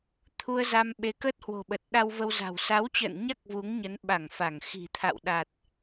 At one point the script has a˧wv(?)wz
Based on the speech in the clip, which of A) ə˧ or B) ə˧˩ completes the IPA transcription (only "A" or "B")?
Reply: A